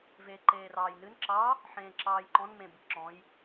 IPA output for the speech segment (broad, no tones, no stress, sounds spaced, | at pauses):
v eː ǃ eː r ɑː j n ɨ n ǁ ɑ | ħ ẽː ǁ ɑː j ǃ ɔ̃ n m ẽ b ɨ ǁ ɔ̃ j